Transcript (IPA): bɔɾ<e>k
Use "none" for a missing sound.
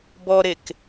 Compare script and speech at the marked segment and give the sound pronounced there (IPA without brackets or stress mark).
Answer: e